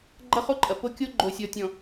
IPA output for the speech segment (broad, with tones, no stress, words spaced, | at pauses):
ɡ͡ǃɐ˦χo˦ǃʼɐ˨ po˦kʲo˦ ɡ͡ǃo˨sʲɔ˨tʲɔ̃˨